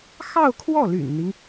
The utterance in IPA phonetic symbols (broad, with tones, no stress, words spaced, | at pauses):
xɑ˥˧ʊ̯kʰwɔ˥˩ly̰˨˩nn̪i˦ŋ